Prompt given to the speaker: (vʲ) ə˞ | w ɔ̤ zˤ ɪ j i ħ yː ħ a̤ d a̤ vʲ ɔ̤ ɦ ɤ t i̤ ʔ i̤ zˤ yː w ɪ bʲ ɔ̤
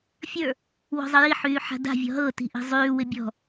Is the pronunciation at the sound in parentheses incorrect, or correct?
incorrect: fʲ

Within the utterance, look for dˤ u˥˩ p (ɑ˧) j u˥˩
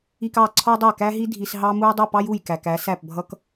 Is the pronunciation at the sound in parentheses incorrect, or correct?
incorrect: ɑ˥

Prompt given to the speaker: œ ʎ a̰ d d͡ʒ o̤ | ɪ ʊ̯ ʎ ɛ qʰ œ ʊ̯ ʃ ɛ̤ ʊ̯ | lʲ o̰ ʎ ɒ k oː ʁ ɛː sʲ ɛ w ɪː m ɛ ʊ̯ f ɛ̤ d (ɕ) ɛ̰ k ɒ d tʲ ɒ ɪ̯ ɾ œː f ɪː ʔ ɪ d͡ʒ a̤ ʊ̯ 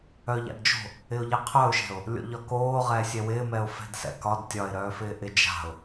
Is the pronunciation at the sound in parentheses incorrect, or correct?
incorrect: s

